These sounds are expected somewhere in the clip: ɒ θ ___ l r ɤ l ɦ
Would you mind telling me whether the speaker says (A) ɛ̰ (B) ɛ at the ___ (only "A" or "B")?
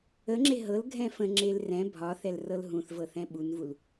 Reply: B